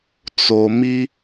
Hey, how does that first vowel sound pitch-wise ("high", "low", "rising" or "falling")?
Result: low